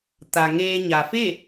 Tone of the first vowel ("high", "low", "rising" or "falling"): low